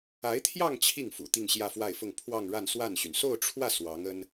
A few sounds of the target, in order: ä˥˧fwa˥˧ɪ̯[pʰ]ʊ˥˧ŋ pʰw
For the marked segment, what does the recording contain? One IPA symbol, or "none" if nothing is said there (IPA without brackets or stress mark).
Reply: f